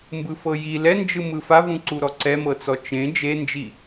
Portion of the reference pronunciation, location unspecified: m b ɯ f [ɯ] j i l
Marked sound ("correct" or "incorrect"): incorrect